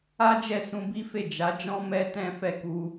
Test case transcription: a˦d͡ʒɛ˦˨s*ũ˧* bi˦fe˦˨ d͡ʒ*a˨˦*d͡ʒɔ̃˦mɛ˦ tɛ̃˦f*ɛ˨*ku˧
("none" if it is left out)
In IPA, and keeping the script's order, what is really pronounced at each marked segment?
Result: ũ˧, a˨˦, ɛ˦˨

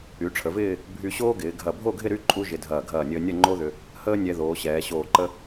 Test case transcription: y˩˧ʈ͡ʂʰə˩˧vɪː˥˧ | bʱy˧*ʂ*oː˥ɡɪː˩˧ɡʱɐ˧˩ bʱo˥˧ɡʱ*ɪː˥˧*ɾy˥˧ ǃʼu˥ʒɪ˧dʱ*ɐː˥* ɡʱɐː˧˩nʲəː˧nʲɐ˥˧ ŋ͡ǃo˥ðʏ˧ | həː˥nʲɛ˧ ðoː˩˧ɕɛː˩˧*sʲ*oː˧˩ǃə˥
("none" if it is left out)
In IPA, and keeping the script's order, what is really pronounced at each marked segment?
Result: ɕ, ɪ˥˧, ɐː˧˩, ɕ

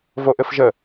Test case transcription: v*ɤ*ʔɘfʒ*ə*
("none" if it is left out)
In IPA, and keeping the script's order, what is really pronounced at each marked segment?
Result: o, ə

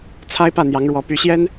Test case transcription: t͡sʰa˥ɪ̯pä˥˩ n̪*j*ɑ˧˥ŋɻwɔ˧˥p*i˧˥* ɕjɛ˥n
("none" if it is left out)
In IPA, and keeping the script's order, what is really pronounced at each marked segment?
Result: j, y˧˥

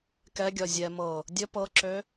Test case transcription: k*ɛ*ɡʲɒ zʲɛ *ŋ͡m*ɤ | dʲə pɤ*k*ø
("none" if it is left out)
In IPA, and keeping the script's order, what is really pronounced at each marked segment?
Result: ɛ, m, ǁ

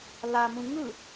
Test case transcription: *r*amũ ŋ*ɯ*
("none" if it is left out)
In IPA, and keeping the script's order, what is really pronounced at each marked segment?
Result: l, ɯ

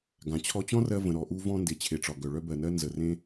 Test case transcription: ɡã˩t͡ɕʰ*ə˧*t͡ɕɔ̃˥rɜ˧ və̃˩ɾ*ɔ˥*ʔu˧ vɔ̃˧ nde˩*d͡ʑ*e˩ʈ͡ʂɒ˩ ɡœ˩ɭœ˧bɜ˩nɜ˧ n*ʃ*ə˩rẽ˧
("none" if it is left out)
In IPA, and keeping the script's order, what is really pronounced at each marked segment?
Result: ɔ˧, ɔ˩, t͡ɕʰ, z

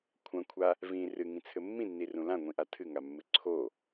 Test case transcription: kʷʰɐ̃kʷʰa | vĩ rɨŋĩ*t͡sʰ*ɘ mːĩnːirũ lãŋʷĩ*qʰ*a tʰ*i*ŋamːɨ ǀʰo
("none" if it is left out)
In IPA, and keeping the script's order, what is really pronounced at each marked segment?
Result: t͡sʰ, ʔ, ɨ

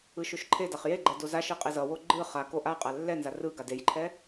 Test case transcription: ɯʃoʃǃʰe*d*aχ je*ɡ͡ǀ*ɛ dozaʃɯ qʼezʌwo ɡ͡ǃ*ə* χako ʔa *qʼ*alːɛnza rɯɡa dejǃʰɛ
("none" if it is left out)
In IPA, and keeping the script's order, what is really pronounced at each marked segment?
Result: d, ɡ͡ǃ, ɯ, qʼ

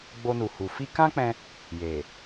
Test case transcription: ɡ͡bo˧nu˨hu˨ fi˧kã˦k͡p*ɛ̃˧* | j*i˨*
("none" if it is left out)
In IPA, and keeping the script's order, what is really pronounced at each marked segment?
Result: ɛ̃˧, e˨

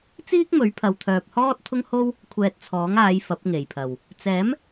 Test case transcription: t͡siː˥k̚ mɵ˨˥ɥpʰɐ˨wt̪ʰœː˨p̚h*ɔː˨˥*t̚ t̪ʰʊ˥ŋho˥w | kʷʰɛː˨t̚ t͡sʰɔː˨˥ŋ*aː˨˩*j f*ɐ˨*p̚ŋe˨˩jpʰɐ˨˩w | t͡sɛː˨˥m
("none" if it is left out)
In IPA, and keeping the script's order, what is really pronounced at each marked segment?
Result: ɔː˥, aː˨˧, ɐ˨˥

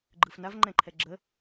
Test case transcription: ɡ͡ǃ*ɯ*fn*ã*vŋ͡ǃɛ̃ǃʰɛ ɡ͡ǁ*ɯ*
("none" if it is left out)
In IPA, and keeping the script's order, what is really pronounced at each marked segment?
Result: ɯ, a, ə

